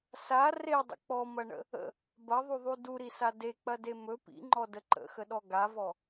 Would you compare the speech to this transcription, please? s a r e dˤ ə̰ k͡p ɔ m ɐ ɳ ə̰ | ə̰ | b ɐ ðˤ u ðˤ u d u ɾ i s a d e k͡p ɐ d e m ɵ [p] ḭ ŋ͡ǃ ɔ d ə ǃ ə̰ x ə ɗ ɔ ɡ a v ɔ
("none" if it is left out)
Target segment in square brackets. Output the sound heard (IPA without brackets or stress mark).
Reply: p